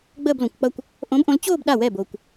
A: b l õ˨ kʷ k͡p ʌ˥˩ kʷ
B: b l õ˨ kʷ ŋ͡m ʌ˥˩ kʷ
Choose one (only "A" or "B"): A